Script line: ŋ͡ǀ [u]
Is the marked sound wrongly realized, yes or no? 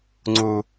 no